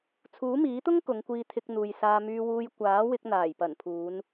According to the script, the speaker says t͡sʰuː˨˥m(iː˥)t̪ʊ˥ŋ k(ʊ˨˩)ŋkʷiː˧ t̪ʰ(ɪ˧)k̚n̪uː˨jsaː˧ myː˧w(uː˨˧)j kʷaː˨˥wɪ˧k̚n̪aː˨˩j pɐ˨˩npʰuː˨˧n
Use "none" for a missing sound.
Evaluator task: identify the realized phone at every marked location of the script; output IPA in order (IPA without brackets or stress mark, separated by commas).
iː˨˥, ʊ˨˧, ɪ˧, uː˧